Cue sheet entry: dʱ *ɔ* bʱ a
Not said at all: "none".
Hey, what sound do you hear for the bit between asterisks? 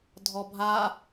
ɔ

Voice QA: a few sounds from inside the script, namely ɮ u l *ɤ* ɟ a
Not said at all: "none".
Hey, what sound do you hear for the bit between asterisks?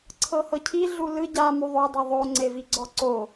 ɯ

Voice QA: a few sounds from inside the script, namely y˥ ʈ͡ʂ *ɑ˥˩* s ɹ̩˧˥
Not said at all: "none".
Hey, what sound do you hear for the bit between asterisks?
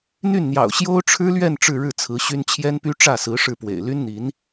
ä˥˩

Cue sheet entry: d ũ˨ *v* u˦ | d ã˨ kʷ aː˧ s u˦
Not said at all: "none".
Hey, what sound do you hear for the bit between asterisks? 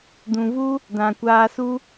v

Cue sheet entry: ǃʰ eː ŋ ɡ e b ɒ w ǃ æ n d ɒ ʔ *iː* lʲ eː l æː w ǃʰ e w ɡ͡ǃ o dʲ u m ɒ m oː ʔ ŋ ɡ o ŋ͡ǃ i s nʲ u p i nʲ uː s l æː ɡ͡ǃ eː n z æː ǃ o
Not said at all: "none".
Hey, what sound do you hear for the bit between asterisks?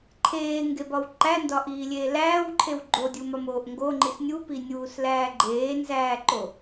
iː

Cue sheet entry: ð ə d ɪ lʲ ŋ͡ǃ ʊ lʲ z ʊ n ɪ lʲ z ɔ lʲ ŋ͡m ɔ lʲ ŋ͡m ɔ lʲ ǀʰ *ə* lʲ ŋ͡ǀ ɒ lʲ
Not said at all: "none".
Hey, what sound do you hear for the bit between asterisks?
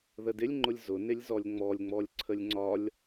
ə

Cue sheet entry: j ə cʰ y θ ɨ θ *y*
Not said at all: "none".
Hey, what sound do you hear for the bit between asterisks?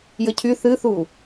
u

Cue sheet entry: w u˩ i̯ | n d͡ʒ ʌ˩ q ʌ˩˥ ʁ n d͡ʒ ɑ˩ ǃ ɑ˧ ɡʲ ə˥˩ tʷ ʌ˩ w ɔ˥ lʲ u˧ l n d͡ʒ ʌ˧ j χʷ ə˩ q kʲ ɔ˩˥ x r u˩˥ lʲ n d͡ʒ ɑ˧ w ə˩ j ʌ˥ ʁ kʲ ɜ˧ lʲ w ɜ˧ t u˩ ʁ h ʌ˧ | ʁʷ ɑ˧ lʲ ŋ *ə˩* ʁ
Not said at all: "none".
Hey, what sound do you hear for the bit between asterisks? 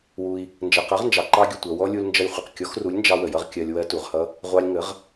ə˩˥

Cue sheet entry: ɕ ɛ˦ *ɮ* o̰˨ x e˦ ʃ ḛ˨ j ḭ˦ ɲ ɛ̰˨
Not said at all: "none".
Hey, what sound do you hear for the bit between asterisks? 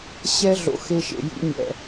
ɮ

